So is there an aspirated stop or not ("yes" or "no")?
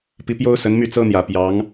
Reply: no